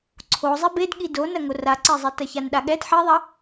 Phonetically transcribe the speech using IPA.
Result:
ǀʰ o zˤ e b e d ɠ i d o n ɐ ŋ o r a ǀ e zˤ i t ɐ ç a n ɗ a ɠ ɛ d ħ i ðˤ ɐ

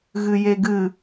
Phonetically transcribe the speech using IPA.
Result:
ɣ ɨ j e ɡ ɨ

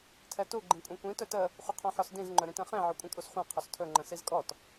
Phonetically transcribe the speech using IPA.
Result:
tʰ ɛ t u ɡ͡ǃ ĩ kʷʼ ɛ̃ kʷ ĩ t ɵ t ə | χʷ ə qʰ ɔ̃ ħ ɔ s d ĩ z ŋ͡ǃ ɵ ɾ ĩ t ɛ̃ χ ẽ ʕ ʏ kʷʼ ə̃ kʼ u s χʷ ɛ̃ qʰ ɵ s tʰ ɵ ŋ͡ǃ ə̃ s i z kʼ ɔ t

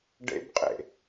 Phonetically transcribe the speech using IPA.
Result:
ɖ ḛ b qʼ ḛ

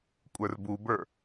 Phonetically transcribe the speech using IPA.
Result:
kʷʼ ə˞ r b u b ə˞

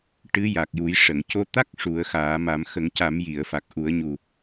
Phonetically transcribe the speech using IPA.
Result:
ʈ ɨ˧˥ j a˨˩ k̚ j u˨˩˦ j ʂ ə˨˩˨ ŋ c o˧ t̪ a˦˥ k̚ ʂ u˨˩˦ ə̯ x aː˨˩˦ m a˨˩˦ m x ə˨˩˦ ŋ c a˨˩˦ m j i˨˩˨ ə̯ f a˨˩ k̚ ʔ u˨˩˦ ə̯ ɲ u˨˩

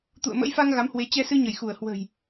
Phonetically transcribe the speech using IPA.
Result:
t̪ ṵ˧˨ ə̯ m ə̰˧˥ j f a˧ ŋ ɣ a˨˦ m h w e˨˦ t͡ɕ ɛ˧ s ɨ˧ ɲ ə˧˩ j x u˧˩ ə̯ h w ə̤˨˩ j

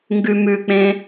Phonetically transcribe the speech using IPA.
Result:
ŋ ɡ ʉ m ʉ k͡p ẽ

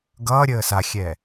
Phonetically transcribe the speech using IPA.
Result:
ɡ ʌː ɾʲ əː s a xʲ ɛ

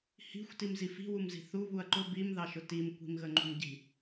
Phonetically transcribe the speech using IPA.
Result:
h i̤ xʷ t i m z i f i̤ w u m z i̤ θ u β u ɐ̯ ǃ ʊ b i m ð ɑ ʃ ʊ t i m kʷ i̤ m ɣ ə ŋ͡ǃ ṳ m ɟ i̤

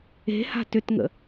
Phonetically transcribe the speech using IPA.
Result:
e̤ h a̤ t ʏ t ŋ ə̰

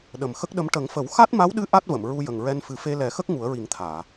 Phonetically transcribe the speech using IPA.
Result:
ɗ ə˨˩ m x ə˦˥ k̚ ɗ ə˧˥ m ʈ ə˨˩˦ ŋ f ə˨˩˦ w x a˦˥ t̚ m a˧˥ w ɗ ɨ˧˥ ʔ a˦˥ t̚ v ə˨˩˨ m ɹ u˧ j ə˨˩ ŋ ɹ ɛ˧ n f ɨ˨˩˦ f e˧ l ɛ˨˩˦ x ə˦˥ k̚ ŋ u˨˩˦ ə̯ ɹ i˨˩˦ ŋ t̪ʰ aː˨˩˨

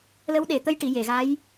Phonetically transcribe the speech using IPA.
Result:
l ə˧˥ w ɗ e˨˩ t̪ ə˧ j ʈ i˨˩˨ j e˨˩˨ ɣ a˧˥ j

